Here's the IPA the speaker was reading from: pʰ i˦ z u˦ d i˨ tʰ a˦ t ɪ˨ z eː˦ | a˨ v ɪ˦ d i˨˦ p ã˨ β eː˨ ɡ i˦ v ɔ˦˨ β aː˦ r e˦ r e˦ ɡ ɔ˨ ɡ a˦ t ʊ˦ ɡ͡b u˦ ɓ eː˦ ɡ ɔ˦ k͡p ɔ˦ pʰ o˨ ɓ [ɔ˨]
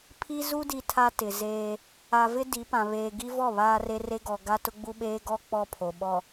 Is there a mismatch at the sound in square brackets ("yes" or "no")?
no